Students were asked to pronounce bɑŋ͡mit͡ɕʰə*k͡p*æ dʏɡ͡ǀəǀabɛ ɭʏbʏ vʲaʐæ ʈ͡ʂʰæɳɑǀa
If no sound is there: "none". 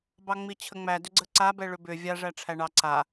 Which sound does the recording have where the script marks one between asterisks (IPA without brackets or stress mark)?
ŋ͡m